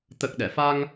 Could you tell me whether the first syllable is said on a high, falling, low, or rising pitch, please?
low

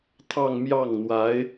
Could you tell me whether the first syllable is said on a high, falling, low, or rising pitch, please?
falling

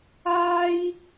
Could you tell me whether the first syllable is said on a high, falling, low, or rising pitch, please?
high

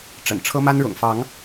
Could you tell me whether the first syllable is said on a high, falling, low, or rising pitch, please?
low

